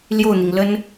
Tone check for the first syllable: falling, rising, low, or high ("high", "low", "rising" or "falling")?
falling